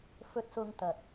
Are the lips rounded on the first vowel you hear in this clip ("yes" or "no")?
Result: yes